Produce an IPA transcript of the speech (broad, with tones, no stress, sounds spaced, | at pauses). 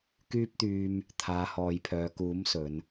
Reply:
k yː˧ p̚ t̪ yː˨ m | t̪ʰ aː˨˧ h ɔː˨ j pʰ œː˨˧ k uː˨˥ m s ɵ˨˧ n